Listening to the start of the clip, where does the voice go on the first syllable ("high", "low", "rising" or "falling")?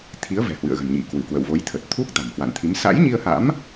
rising